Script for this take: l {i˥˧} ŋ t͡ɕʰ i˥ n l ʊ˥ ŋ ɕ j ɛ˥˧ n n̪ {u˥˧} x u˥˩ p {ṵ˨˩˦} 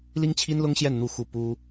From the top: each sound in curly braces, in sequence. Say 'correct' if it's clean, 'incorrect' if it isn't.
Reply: incorrect, correct, incorrect

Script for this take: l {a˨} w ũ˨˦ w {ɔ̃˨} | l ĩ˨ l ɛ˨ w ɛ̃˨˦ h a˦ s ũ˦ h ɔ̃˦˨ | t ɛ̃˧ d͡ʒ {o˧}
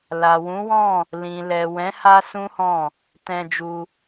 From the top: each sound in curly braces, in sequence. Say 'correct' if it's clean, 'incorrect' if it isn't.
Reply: correct, incorrect, incorrect

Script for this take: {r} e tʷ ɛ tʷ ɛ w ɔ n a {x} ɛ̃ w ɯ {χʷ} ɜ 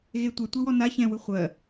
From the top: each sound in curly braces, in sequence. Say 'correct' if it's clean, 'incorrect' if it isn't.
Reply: incorrect, incorrect, correct

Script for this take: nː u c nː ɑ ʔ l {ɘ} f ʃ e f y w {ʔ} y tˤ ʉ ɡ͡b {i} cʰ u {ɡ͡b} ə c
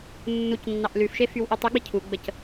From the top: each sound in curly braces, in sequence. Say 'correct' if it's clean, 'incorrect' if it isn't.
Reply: incorrect, correct, correct, correct

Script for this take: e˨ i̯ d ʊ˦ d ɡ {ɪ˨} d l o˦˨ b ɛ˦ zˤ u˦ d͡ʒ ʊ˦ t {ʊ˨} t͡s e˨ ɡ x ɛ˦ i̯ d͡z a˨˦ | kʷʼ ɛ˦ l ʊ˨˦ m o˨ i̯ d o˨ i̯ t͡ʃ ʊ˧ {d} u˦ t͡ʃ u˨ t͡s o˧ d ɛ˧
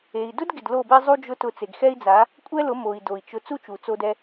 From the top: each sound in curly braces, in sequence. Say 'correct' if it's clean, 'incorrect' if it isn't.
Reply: correct, incorrect, incorrect

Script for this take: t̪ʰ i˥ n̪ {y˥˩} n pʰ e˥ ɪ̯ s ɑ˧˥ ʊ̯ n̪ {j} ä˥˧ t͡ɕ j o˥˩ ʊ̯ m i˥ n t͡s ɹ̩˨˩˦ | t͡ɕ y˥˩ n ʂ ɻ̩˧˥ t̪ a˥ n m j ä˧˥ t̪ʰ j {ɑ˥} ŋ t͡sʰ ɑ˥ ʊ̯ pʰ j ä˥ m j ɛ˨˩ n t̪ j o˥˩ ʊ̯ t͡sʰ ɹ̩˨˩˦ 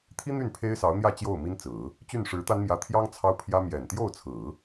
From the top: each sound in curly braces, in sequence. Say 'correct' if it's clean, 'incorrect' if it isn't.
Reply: correct, correct, correct

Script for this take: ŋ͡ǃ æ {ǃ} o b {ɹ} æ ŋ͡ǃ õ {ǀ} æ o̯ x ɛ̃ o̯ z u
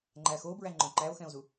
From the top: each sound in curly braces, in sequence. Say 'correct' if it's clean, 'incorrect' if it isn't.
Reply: incorrect, correct, incorrect

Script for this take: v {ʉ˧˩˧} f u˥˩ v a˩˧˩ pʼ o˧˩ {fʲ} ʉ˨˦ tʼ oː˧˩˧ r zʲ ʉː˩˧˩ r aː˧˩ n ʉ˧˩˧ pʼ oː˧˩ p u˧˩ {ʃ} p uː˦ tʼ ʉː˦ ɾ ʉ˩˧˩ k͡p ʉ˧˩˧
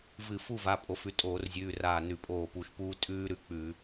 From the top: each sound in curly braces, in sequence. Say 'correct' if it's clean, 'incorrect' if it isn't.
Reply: incorrect, incorrect, correct

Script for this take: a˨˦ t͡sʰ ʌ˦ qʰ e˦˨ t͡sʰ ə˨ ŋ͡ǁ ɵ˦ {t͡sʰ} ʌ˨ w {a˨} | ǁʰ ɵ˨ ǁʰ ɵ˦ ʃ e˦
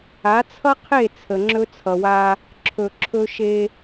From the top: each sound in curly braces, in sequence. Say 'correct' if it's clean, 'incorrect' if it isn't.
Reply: correct, incorrect

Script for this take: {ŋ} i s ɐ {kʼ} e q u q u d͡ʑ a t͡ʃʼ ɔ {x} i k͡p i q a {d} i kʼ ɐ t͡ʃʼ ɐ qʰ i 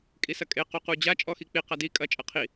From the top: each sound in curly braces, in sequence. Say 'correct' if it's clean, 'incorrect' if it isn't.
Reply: incorrect, correct, correct, correct

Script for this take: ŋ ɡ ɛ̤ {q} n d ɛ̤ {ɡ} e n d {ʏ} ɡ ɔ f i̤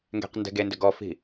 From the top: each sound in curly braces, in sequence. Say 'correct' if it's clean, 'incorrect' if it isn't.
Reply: correct, correct, correct

